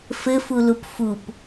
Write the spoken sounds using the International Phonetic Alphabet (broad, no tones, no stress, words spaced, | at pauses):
fɘfulup fup